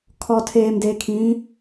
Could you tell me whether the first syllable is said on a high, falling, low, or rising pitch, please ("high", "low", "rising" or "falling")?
low